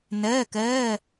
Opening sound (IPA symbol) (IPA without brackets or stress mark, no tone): n